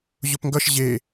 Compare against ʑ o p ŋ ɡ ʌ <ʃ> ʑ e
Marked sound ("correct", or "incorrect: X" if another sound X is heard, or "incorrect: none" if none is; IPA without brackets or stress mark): correct